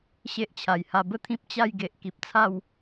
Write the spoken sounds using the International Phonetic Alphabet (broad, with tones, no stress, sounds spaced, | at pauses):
ɕ e˦ ʔ t͡ɕʰ a˨˩ j h a˧ b ə˦ t̪ʰ ĩ˦ p̚ t͡ɕ a˥˧ j ɡ e˨ ʔ k i˨ p̚ t͡sʰ a˥˧ w